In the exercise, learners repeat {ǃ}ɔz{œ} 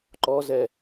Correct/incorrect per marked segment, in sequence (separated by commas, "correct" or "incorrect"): correct, incorrect